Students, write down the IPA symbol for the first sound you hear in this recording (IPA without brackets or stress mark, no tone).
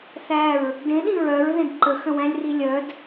θ